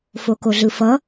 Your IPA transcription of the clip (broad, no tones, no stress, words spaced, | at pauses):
fokoɮɯfʌ